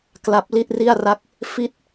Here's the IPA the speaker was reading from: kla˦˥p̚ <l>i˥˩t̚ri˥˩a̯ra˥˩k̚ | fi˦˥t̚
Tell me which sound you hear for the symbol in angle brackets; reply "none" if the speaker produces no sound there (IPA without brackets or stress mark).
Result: l